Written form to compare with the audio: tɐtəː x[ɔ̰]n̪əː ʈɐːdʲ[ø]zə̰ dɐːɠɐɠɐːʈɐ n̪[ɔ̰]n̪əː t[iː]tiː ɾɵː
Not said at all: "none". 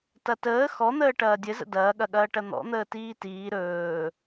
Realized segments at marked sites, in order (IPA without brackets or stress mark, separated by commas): ɔ, ɘ, ɔ̰, iː